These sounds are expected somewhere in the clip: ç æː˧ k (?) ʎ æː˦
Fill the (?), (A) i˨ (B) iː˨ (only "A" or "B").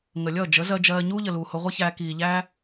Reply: B